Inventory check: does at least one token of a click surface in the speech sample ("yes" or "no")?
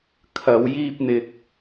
no